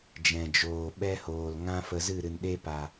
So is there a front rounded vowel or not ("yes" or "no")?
no